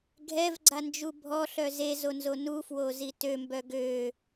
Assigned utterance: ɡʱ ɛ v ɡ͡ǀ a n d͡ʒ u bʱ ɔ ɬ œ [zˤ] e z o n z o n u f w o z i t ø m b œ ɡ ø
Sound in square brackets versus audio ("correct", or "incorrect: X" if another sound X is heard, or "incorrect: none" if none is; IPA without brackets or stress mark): incorrect: z